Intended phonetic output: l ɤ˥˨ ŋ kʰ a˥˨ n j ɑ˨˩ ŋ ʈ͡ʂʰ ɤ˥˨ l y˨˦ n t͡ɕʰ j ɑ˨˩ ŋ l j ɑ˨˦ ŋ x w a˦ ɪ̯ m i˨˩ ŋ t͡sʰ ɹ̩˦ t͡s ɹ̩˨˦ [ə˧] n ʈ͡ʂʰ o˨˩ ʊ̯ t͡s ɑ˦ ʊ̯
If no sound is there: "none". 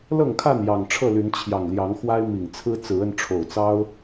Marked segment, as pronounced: ə˧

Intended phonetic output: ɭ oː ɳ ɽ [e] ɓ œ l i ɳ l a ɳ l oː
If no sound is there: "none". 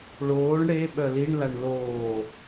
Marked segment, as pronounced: e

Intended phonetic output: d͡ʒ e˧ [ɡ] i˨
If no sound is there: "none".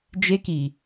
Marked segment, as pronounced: k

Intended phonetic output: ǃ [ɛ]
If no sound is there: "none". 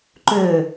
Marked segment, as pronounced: ø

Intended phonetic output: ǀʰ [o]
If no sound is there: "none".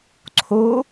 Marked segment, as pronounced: o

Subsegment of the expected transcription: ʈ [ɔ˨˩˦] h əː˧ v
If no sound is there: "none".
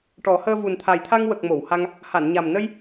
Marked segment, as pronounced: ɔ˨˩˦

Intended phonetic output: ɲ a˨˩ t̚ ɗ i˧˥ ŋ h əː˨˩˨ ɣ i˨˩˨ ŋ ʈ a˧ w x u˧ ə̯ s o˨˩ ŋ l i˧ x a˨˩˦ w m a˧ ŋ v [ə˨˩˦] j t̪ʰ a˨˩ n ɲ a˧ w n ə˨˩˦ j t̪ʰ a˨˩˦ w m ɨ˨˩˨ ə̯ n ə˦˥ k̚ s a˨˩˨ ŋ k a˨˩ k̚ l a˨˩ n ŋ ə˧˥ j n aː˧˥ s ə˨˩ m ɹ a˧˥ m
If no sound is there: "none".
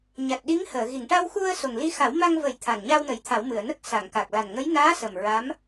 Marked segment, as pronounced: ə˨˩˦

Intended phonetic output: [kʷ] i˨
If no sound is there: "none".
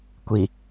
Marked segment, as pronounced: kʷ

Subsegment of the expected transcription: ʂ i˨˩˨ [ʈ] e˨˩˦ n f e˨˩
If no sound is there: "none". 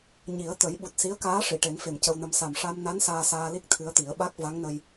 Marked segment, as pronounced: ʈ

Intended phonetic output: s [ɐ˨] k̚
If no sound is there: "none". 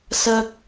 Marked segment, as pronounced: ɐ˥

